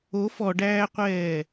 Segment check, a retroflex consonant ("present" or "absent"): present